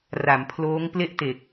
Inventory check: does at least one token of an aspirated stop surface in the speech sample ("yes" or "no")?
yes